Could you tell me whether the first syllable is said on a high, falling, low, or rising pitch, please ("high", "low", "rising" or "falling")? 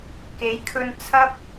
rising